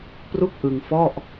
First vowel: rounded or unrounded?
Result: rounded